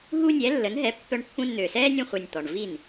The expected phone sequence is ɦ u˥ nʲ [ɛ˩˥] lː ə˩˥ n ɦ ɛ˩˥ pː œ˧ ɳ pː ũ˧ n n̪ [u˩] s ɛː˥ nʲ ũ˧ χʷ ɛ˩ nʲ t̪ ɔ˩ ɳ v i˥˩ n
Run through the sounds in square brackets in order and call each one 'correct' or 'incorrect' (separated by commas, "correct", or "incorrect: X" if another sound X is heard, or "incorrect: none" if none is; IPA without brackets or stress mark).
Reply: correct, incorrect: ø˩